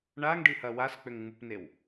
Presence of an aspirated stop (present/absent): absent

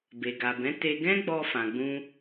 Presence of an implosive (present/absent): absent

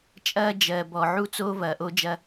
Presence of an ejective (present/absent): present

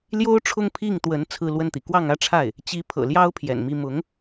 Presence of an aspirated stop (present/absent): present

